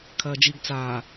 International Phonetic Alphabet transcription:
kʰɐːd͡ʒiɡ t͡saː

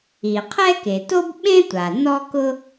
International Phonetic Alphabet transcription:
i˩qʰɛ˥ke˩ to˥bɓẽ˥tʷa˩ nɔ˥kʊ˥

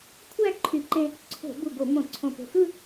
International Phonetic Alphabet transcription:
kʷʰæ˥˧ ǃʰy˧˩˧ǃẽ˧ | ǀʰo̤˧˩˧ bu˧˩ɡo˧˩˧ mõ˧˩˧ǀʰõ˧˩po̤˧˩xɯ˥˧

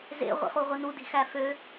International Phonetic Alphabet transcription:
zḛʁʷḭχuʁʷi nudi̤xæ fø

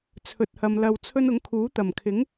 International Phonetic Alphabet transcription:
t͡sʰɵ˨t̚hɐ˨m lɐ˧wt͡sʰɵ˥n ʊ˨˥ŋkʰuː˨˥t̪ɐ˨˩m kʰɪ˨˥ŋ

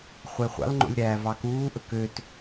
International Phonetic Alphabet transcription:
χʷeχʷɑ̰lŋ͡ǃo̰lʲ ɾæːvɑkuːʔɵk øt

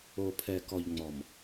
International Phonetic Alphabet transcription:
o˨pʰɛ˨kɔ˨ʎ ŋ͡mɔ˨m

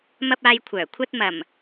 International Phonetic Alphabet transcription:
mɐ˧p̚ aː˨j kʷʰœː˨˩ kʷʰɐ˧t̚mɐ˨˩m

